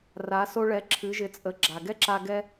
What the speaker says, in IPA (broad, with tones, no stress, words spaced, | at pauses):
ra˩˧so˧ɭɛ˩˧ ǁʰɨ˩˧ʒɪ˩˧t͡sʼə˩˧ ɡ͡ǁa˩ɡɛ˥ǁa˧ ɡɛ˥